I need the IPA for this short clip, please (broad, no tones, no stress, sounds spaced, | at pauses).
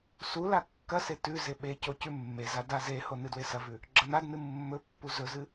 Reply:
s u l a kː ɐ s e t ʉ z e ɓ e c o c ʉ mː e z a d a z e h o n ɨ d w e s ɐ v ʉ | ɡ͡ǁ ɐ n a d n ɨ mː ɵ pː u z ɵ z ɨ